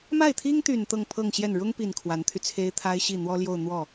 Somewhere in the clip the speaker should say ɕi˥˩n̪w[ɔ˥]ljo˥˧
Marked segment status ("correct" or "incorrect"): correct